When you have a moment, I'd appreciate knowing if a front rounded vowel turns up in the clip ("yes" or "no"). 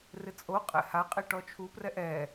no